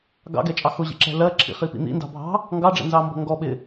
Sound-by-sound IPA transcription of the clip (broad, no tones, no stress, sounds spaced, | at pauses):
ɡ ɑ̰ ɡ ɛ t͡ʃʼ ɑ x ʊ ʑ ḭ ǁ ɛ̤ l ɜ ǁʰ ḭ χ i p ḭ n̪ ḭ n d ɑ̤ bʱ ɑ̤ | ŋ ɡ ɑ ɖ͡ʐ ɛ̰ n z ɑ m b ɔ̤ ŋ ɡ ɔ ɓ ɪ